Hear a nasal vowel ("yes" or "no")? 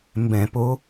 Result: yes